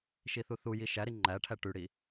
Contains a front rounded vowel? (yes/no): yes